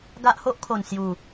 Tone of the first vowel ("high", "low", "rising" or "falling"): high